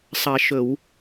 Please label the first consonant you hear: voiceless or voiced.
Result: voiceless